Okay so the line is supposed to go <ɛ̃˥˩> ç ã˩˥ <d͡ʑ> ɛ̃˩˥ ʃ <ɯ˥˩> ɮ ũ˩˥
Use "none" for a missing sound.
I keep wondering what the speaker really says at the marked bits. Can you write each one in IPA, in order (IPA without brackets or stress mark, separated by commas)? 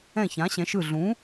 ɛ̃˥˩, ɕ, ɯ˥˩